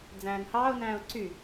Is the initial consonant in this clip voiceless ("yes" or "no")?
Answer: no